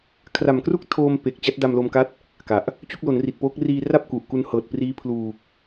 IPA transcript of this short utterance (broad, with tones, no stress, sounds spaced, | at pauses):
kʰ r a˨˩ m k r u˥˩ k̚ tʰ oː˧ m p e˨˩ k̚ t͡ɕ a˦˥ t̚ d a˧ m l o˧ m k a˦˥ t̚ | k a˨˩ ʔ | t͡ɕ u˥˩ k̚ l o˩˦ n r i˨˩ t̚ p oː˦˥ k̚ r iː˧ r a˥˩ p̚ k u˨˩ ʔ k u˧ n h ɤː˨˩ t̚ p r iː˦˥ pʰ l uː˨˩ k̚